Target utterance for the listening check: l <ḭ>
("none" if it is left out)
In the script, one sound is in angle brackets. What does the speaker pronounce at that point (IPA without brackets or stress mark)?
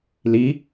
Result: i